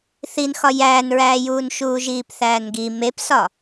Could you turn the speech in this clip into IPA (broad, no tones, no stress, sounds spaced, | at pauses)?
θ i n x ɒ j æː n ɹ æː j uː n ʃ uː ʒ iː p θ æː n ɡ i m e p s ɒ